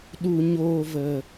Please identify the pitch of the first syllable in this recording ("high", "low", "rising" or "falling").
low